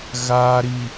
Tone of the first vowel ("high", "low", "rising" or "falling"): low